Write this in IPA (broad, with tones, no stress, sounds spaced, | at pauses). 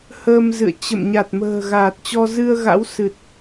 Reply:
h əː˧ m z ɨ̰˧˨ ə̯ t͡ɕ ə̰˧˨ m ɲ a˨˩ t̚ m ə̤ː˨˩ ɣ aː˨˩ t̚ t͡ɕ ɔ˧ z ɨ˧ ə̯ ɣ a̰˧˥ w s ɨ˨˩ t̚